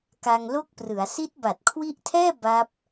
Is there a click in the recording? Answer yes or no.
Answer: no